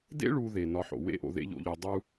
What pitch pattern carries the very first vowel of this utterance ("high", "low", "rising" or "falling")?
high